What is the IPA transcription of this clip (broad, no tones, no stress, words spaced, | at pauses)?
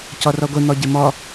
cɔrɔɡʷe n̪ɔɟɪmɔ